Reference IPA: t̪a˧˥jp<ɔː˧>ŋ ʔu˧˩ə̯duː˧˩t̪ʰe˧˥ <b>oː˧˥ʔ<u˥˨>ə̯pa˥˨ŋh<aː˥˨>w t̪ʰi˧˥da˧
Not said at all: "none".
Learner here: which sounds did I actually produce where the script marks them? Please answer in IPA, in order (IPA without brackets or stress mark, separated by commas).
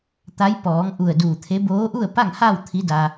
ɔː˩˧, b, u˥˨, aː˥˨